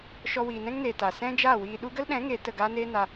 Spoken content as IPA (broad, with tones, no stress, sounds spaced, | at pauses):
ʃ ɔ˧ w iː˨ n ɛ̃˦ ŋ n eː˨ t a˨ s ɛ̃˦ d͡ʒ a˦˨ w iː˧ ɗ u˦ ɡ ə˦ l ɗ ɛ̃˨˦ ŋ eː˨ t ə˦˨ ɡ aː˦ n eː˦ n a˧